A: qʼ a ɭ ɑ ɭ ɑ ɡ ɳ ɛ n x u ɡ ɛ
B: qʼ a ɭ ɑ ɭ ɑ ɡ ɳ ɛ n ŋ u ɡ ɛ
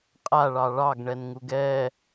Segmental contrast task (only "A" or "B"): B